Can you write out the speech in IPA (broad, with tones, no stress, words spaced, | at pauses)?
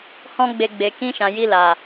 hɔ̃˦ɡ͡be˧ ɡ͡be˨kĩ˧ʃã˨ ji˧la˨